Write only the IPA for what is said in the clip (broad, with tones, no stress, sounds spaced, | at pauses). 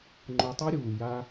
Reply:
ŋ͡ǃ o˧ tˤ a˦ ɾʲ uː˨ j a˧